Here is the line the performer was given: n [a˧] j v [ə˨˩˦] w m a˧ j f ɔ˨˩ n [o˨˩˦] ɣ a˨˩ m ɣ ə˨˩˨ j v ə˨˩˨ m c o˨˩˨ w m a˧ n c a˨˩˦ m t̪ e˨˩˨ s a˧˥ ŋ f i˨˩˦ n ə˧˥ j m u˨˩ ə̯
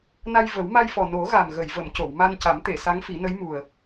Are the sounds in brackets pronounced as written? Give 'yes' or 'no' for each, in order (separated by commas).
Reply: yes, yes, yes